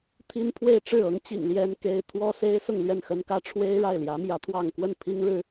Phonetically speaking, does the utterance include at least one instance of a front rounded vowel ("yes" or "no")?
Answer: no